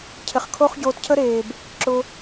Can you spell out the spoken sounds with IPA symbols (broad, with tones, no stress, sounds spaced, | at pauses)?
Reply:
cʰ ɪ˨ χ kʰ o˦ χ ɟ oː˧ t cʰ ə˦ ɾ eː˨ b | ǁ ʊ˧